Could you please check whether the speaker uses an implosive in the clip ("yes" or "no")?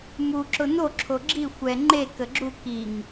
no